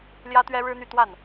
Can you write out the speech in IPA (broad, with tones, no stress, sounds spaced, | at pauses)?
l j ä˥ t̪ ɥ ɛ˥ ɻ ɻ̩˥ n̪ y˥˧ t̪ w a˥˩ n